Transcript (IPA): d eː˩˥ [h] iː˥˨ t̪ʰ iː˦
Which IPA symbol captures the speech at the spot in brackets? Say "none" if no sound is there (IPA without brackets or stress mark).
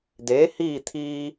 h